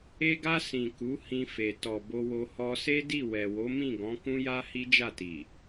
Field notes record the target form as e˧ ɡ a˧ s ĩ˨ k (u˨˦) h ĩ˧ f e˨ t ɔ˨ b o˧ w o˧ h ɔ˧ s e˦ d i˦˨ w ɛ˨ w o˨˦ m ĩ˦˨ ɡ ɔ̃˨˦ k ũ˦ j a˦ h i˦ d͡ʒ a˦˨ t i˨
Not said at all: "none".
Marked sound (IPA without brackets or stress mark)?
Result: u˨˦